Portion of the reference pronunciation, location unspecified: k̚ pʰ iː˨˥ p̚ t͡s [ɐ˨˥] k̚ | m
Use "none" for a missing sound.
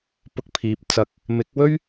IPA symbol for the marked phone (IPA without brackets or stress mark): ɐ˨˥